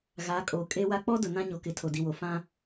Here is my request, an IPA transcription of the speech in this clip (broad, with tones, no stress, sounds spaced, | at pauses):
ɣ aː˨˦ kʼ oː˨ kʼ e˦ w a˦ k͡p ɔ˦ d ʊ˨ n ã˦ ɲ o˨ k ɪ˨ tʰ o˨ d i˨ w o˨ f ã˦